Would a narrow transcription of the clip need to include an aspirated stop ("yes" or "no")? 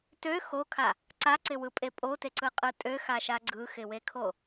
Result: yes